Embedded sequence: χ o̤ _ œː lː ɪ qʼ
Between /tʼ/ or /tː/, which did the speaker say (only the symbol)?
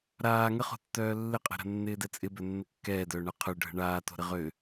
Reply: tː